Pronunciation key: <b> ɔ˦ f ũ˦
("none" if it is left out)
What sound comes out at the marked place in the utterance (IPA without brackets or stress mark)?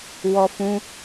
w